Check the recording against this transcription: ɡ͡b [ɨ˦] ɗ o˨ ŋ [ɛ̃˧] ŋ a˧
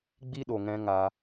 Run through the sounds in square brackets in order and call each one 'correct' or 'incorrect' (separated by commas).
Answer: incorrect, correct